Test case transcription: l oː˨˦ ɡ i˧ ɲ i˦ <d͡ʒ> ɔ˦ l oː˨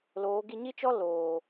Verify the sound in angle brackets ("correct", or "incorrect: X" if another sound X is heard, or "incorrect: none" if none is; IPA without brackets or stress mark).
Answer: incorrect: t͡ʃ